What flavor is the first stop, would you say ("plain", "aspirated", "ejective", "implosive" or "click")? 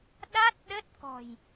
implosive